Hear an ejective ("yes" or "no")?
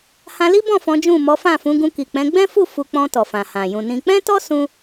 no